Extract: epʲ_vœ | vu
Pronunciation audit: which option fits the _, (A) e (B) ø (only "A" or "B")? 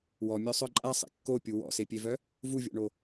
A